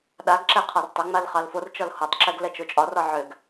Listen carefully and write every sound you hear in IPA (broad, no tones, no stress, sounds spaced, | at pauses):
ɗ a ɡ ǁ ɛ qʰ ɒ r tˤ ʏ ŋ͡m a l χ ɑ l f o r t͡ʃ ɒ l h o tˤ ǁ ɛ ɡ l ɛ t͡ʃ o t͡ʃʼ ɒ r ɒ ʕ ʏ ɡ